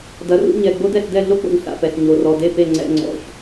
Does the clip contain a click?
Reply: yes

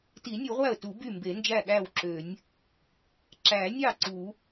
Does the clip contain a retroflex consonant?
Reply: no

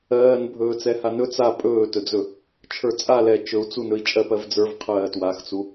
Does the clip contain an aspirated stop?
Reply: yes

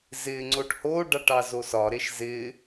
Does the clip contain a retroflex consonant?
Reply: yes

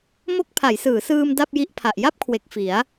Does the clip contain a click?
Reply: no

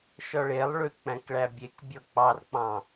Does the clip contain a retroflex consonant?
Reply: yes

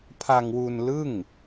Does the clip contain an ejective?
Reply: no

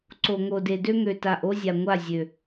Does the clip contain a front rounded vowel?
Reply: yes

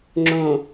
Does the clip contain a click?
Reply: yes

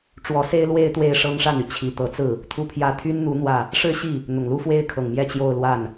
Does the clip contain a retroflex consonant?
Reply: yes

